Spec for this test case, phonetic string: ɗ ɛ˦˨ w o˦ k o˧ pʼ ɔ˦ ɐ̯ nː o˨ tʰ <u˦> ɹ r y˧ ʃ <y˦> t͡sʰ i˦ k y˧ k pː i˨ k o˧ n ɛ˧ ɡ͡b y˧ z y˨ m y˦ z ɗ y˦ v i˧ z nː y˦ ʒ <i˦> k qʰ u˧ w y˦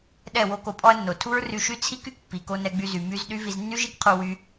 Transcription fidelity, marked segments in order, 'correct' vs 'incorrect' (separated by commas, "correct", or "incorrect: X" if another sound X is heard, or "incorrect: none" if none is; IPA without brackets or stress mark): correct, correct, correct